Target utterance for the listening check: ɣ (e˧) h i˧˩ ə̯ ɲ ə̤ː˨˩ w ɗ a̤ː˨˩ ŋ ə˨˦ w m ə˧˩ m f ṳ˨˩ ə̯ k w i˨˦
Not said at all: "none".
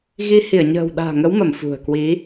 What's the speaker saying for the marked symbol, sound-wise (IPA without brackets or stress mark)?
i˧